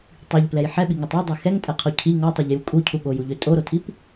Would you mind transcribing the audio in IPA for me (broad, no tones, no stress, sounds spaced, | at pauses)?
tˤ i ʎ p l ɛ j ħ ɛ ɓ i ŋ u tˤ u dˤ ɛ x ɛ ŋ tʼ ɛ qʰ o cʰ i ŋ ɔ tˤ o ʎ j u kʼ u cʰ u ɠ o j u ʎ ø tʼ o ɾ o tʰ i p